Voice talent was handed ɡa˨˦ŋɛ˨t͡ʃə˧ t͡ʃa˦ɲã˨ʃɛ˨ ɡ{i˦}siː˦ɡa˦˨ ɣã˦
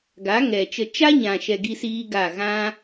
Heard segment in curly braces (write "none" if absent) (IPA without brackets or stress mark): i˦